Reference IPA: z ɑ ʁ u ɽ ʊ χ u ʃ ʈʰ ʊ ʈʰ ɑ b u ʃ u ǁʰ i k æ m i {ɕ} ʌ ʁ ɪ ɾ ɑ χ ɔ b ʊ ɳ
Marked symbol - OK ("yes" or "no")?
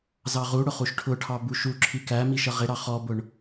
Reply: no